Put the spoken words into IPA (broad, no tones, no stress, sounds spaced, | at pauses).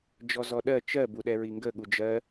d͡ʒ ɔ z ɔ ɗ ɜ t͡ʃ ɜ b u ɗ ɛ ɹ i ŋ ɡ ə ɠ u d͡ʒ ɜ